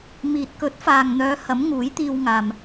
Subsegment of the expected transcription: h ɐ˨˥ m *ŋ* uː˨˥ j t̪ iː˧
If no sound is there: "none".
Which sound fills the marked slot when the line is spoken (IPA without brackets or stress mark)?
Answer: ŋ